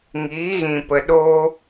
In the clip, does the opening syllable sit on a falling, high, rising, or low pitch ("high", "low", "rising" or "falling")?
rising